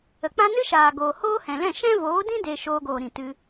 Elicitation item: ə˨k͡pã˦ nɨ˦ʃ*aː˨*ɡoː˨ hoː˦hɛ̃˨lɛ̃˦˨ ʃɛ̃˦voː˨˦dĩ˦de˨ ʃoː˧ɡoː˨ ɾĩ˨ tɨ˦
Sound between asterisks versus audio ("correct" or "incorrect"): correct